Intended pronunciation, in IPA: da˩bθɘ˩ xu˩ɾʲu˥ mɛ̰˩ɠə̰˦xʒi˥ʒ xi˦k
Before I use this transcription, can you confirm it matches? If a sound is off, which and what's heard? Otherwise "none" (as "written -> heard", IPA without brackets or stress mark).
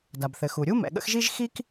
none